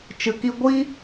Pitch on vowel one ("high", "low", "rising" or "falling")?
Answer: low